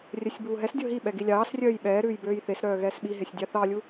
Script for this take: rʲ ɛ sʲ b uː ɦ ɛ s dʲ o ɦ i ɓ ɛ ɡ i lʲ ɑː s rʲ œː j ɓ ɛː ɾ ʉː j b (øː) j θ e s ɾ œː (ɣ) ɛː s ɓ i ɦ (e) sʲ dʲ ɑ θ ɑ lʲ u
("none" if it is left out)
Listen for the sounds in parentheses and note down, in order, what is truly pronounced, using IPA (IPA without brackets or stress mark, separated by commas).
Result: øː, ɣ, e